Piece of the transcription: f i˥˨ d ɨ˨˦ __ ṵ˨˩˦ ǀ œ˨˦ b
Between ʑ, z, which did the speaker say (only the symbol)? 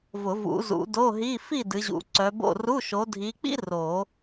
ʑ